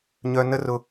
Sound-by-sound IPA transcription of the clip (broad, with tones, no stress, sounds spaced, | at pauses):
ɲ œ˧ n ə˦ r ʊ˧